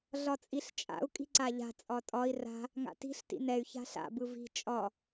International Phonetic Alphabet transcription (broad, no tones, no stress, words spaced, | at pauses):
ɮɒt͡sʼiɬt͡ʃʼa̰u̯ kʼi̤ǀaʎa̤ t͡sʼɒtʼɒi̯ ra̤ | ŋa̰ti̤ɬ tḭnɛy̯ ça̤ɬa̰ bɯvi̤ t͡ʃʼɒ